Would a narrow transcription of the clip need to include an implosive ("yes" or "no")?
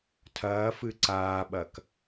yes